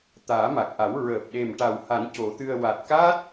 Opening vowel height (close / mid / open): open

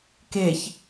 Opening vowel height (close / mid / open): mid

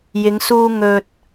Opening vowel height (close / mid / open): close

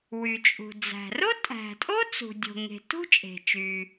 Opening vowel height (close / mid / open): close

